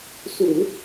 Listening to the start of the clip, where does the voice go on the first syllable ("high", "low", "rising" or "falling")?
low